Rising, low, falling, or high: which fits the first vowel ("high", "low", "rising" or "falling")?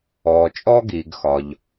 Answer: low